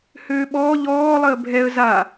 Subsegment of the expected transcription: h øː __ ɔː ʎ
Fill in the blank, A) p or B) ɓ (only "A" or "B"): B